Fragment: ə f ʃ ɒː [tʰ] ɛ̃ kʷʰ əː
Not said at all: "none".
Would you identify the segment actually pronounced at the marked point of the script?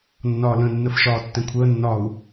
tː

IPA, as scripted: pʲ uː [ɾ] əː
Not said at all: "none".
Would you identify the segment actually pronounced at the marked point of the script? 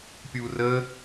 r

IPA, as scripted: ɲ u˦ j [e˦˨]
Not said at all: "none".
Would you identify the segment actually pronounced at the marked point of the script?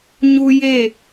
e˦˨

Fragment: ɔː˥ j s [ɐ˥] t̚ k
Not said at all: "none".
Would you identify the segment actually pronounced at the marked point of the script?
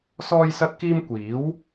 ɐ˥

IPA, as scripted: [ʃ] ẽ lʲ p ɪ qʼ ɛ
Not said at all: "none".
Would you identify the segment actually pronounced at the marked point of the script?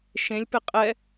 ʃ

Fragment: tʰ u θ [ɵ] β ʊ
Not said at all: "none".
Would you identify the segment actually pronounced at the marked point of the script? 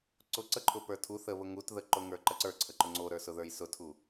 ə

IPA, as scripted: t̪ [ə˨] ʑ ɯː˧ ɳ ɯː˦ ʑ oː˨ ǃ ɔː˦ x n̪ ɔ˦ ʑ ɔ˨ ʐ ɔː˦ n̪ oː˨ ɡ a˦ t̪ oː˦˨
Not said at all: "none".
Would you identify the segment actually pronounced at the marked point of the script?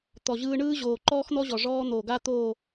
ɔ˨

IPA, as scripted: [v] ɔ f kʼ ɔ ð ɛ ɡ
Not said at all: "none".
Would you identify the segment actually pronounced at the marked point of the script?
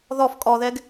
ð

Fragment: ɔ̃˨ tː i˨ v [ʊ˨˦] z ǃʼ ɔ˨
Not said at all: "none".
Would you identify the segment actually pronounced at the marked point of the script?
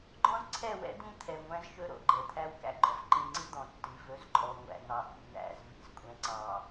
ɵ˨˦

